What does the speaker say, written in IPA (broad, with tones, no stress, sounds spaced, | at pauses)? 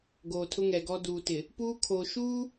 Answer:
ɡ oː˨ tʰ ʊ˦ ŋ ɛ˨ ɡ ɔ˦ d uː˨ t ɪ˨ | p uː˦ kʰ oː˨ ʃ uː˦